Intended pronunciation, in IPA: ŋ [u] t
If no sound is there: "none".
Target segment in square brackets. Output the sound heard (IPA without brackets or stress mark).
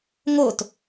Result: o